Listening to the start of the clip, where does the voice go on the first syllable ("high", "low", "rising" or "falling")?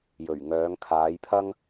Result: low